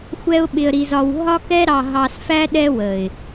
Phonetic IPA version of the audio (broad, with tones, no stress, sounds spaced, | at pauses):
xʷ ɛ˦ ʊ̯ ɓ ɪ˧ ə̯ ɾ i˧ z ɒ˧ w ɦ ɒ˦ k ɛ˦ ɾ ɑ˧ ɦ ɑ˧ s f æ˦ ɗ ɛ˦ w ə˨ ɪ̯